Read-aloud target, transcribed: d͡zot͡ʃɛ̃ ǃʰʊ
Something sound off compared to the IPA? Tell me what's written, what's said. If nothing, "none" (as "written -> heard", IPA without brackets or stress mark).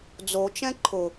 none